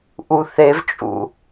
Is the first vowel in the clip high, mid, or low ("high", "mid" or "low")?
high